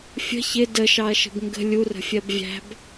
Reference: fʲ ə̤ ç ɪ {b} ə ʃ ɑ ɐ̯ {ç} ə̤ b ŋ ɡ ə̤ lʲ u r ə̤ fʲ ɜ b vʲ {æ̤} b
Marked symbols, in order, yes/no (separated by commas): no, no, yes